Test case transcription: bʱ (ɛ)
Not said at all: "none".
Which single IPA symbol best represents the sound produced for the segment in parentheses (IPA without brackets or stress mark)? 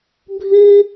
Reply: ɨ